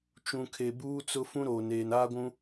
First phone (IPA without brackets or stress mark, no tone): t͡ʃ